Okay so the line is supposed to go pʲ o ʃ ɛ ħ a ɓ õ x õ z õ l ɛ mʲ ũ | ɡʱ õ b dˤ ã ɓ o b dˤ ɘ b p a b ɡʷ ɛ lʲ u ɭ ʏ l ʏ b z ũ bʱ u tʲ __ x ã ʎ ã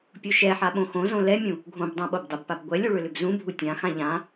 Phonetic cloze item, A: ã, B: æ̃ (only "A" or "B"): A